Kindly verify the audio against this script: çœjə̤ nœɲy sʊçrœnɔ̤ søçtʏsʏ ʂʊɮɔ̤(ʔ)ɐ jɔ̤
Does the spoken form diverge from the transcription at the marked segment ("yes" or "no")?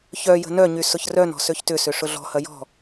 yes